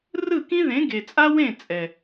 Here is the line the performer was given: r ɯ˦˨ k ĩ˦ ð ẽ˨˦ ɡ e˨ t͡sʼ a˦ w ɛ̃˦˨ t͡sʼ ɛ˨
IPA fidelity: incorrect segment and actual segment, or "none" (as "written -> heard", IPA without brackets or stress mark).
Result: ɛ̃˦˨ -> ẽ˦˨